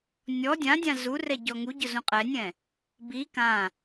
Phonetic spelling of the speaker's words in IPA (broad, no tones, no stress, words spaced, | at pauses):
nʲɔ dʲãdʲã zurɛ ɟɔŋuɟʊ zũqʼɛnʲɛ̃ | bi kã